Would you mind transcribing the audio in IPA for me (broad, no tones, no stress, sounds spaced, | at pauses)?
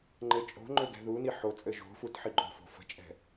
ŋ͡ǃ ɘ t͡ʃʼ o̤ ŋ͡ǃ ø ɡ ɛ̤ ð u n i ħ o t͡sʼ ɘ ʒ o̤ f u t ħ i ɡ͡ǃ o̤ f o̤ f ə̤ t͡ʃʼ ɛ̤